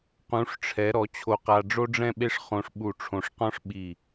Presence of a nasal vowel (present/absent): present